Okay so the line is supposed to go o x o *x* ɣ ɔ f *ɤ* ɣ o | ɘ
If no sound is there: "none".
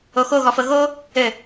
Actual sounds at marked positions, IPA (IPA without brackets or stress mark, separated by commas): none, ɤ